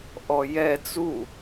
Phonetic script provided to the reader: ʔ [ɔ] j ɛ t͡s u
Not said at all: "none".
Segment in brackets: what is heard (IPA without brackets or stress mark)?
ɔ